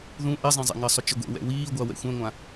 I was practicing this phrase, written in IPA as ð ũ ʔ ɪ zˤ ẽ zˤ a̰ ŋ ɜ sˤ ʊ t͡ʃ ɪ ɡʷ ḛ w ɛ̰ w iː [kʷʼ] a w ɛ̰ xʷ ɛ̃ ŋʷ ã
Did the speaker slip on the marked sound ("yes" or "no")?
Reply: yes